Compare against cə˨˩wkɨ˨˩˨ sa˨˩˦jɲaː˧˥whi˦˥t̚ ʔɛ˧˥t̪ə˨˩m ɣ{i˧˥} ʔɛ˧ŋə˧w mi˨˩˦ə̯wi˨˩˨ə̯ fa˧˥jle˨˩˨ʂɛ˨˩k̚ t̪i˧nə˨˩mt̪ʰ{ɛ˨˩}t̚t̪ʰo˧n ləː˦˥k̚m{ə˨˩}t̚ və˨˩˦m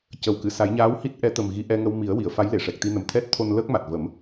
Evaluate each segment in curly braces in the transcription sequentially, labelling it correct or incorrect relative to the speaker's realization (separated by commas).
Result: correct, incorrect, incorrect